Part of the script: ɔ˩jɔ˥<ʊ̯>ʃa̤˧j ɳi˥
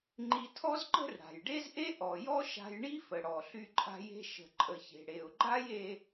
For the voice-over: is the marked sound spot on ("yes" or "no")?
no